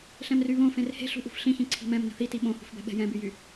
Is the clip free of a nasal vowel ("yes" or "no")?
no